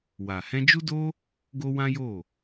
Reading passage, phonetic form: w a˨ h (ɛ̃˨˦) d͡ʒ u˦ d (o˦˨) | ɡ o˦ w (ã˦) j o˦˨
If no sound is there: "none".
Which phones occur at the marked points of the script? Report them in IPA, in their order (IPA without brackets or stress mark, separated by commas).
ɛ̃˧, o˦, ã˦